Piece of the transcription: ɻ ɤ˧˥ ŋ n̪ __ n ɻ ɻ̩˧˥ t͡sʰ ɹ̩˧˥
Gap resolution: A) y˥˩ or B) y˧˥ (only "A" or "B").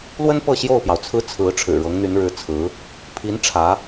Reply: B